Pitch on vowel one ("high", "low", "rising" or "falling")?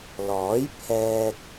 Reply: rising